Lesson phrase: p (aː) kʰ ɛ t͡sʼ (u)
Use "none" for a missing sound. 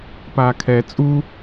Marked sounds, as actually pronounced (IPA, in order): aː, u

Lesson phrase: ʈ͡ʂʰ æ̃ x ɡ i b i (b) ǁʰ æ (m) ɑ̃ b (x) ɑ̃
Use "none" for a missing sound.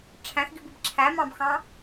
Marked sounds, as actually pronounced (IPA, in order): b, m, x

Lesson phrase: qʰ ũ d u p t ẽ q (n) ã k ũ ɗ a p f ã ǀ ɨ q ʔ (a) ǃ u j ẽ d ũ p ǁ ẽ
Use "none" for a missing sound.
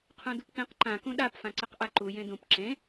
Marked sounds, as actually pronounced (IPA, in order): ǃ, a

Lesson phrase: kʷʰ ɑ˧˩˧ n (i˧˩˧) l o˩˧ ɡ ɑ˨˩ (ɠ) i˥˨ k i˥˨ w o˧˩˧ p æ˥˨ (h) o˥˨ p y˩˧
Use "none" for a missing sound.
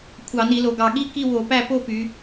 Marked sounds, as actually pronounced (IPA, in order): i˧˩˧, ɠ, p

